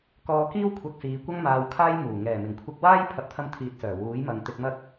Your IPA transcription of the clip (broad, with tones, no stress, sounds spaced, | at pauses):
k ɔː˧ k iː˥ w kʷʰ ɐ˧ k̚ s iː˨˧ kʷ ɐ˥ ŋ m aː˧ w kʰ aː˥ j m uː˨˩ ŋ ɛː˨˩ m ɪ˨˩ ŋ kʷʰ ɪ˧ k̚ w aː˥ j pʰ ɐ˨ p̚ t̪ʰ ɐ˧ m t̪ʰ iː˧ t̚ s œː˨˩ w uː˨˥ j m ɐ˨ ŋ t̪ ɪ˧ k̚ m ɐ˥ k̚